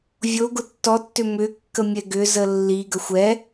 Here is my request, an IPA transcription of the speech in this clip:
vʲoɡʊ tːɔtːʏ mʏkːə mʲɛɡʏzə lːiɡəxʷ ɛ

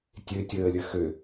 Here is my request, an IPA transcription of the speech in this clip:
tʲøtʲəːlʲə xø

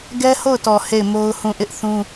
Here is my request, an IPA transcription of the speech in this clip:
ɡɛ˦ho˦˨ʊ̯tɔ˨ he˦˨ɪ̯mo˦ʊ̯hũ˦˨ ʔɪ˦ʔθũ˦

